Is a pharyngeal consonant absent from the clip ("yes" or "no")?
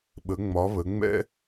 yes